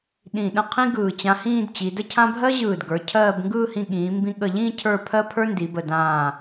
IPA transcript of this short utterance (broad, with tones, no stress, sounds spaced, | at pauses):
ɗ ĩ˧˩ ɗ ə̃˥˧ qʰ ĩ˥ ɡ ɯː˧˩ t͡ɕ ã˧ h ĩː˥˧ d t͡ɕ i˩˧ d ə˥˧ cʰ ã˥ bʱ ɜ˥ ʑ ɯː˧˩ d ɡ ə˞˩˧ cʰ ɜː˥˧ b ŋ ɡ ɯː˥˧ h ĩ˧ ɠ ĩː˩˧ m b ĩ˧ ɠ ə˧˩ ʎ ĩː˥˧ cʰ ə˞˥˧ pʰ ɜ˥ pʰ ə˞˥ n d i˩˧ b ə˧˩ d ãː˧˩